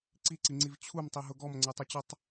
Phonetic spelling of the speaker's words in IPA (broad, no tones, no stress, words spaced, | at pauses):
ǀiǀiŋ͡ǀiv t͡ɕʰumtˤiɦʊ ɡɔmŋ͡ǀetˤet͡ɕʊtˤ